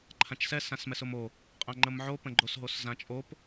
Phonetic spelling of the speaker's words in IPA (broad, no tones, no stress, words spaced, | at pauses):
ǃʰãt͡ʃsɛ sãsmɛsʊmo | qʼãŋ͡ǃəmʕopə̃ ɡ͡ǃosɦoszãt͡ʃʼop